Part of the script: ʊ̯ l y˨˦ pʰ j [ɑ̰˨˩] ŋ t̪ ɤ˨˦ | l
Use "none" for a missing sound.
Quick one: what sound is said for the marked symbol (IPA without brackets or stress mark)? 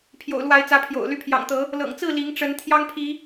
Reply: ɑ̰˨˩